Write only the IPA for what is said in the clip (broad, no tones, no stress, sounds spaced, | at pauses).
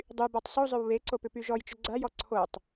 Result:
dˤ y b ɔ tˤ s u zˤ ʏ w β e ǀ o p ʏ p y ʒ ɔ j t͡ʃ ʏ ɡ͡ǀ a j ɔ ǀʰ o tˤ